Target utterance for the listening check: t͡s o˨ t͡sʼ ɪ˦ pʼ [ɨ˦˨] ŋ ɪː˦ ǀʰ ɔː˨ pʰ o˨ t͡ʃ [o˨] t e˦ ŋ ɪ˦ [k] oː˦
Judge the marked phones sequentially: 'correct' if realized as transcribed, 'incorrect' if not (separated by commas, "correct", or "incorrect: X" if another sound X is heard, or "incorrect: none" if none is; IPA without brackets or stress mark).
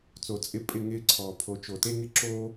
incorrect: ɪ˦˨, correct, incorrect: ǁ